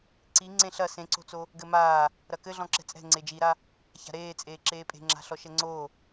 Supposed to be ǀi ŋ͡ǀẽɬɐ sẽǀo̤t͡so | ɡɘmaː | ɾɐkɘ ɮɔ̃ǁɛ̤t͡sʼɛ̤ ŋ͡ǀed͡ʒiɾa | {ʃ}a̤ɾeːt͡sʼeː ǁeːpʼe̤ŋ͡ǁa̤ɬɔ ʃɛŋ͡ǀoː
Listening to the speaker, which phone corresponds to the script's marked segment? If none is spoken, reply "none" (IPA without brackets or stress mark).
ç